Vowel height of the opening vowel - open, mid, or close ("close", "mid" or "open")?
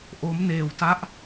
mid